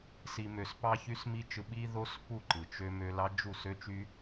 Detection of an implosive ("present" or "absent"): present